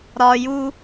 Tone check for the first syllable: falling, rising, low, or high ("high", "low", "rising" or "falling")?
low